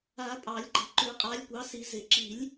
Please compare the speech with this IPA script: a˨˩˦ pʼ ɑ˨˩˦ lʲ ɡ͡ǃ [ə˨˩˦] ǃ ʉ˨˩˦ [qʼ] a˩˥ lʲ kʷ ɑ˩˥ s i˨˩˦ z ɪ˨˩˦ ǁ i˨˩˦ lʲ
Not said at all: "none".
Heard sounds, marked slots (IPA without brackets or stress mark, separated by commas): ə˨˩˦, qʼ